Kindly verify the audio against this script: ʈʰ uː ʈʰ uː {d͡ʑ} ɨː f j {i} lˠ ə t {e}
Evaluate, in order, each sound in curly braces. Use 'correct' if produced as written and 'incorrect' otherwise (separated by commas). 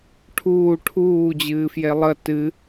correct, incorrect, incorrect